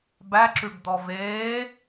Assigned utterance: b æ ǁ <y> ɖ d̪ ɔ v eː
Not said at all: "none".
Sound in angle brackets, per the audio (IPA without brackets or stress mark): y